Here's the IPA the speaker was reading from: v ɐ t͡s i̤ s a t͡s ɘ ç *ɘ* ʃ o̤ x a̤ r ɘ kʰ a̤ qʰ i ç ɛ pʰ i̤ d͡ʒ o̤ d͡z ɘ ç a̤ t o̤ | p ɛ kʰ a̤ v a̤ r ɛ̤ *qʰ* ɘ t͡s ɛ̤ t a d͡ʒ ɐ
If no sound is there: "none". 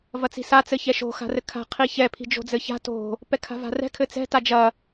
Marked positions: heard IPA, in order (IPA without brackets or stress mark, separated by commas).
ɛ, kʰ